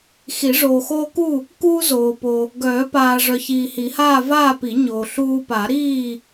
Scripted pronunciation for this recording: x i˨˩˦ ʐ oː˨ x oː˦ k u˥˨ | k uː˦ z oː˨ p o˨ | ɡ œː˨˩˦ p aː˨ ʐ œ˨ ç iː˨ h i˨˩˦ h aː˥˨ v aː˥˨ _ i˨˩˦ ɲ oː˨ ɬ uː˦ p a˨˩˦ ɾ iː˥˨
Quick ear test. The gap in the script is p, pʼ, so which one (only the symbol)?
p